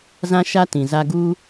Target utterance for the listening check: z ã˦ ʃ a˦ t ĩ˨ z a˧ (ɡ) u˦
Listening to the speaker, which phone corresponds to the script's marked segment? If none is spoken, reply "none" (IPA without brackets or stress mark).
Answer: ɡ